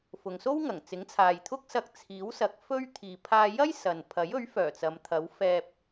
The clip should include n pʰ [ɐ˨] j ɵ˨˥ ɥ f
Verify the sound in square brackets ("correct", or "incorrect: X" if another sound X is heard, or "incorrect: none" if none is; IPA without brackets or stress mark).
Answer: incorrect: ɐ˨˥